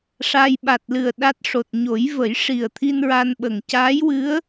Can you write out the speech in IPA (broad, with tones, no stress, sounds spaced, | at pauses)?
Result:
ʂ a˧ j ɓ a˨˩ t̚ l ɨ˨˩ ə̯ ɗ a˦˥ t̚ ʂ o˨˩ t̚ ɲ o˨˩˦ j v ə˨˩˦ j ʂ i˨˩ ə̯ t̪ʰ i˧ n ɹ a˧ n ɓ ə˨˩ ŋ c aː˧˥ j w ɨ˧˥ ə̯